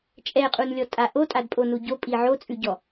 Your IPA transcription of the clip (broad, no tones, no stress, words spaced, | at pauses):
t͡ʃʼɛqʼunlʲɔtʼa ʔotʼadpʼonu ɟopʼi ʕot͡sʼʉɟɔ